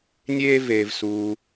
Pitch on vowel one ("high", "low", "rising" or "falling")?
high